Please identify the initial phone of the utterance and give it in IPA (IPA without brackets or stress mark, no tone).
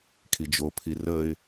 kʰ